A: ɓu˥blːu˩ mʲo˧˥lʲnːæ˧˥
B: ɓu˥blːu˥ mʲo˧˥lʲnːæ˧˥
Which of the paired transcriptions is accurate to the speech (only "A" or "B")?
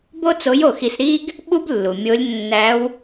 A